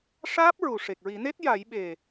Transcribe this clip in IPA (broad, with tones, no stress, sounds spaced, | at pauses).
ʂ aː˦˥ p̚ ɹ u˨˩ ʂ e˨˩ k̚ ɹ i˨˩˦ n e˦˥ t̚ j a˨˩˦ j ɓ e˨˩